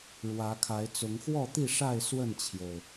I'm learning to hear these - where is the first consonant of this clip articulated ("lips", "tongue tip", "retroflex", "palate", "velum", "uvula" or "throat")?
retroflex